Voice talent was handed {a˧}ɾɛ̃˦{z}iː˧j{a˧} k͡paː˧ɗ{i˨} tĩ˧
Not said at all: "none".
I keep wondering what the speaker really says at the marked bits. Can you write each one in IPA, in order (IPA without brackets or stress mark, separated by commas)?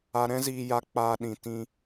a˧, z, a˧, ĩ˨